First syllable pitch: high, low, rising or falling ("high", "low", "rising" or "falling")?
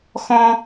high